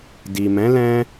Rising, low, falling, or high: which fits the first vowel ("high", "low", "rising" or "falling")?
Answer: low